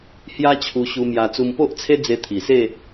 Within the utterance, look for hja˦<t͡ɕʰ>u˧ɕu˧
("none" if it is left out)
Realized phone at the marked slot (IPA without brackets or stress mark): t͡ɕʰ